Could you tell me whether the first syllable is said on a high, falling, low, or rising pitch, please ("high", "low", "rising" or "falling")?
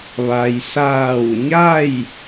low